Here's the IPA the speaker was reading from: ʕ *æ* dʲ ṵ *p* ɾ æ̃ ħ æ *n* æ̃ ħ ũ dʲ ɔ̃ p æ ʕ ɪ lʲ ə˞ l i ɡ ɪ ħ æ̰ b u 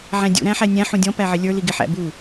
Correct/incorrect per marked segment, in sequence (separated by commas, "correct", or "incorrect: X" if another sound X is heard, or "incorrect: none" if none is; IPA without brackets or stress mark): incorrect: æ̃, incorrect: none, incorrect: nʲ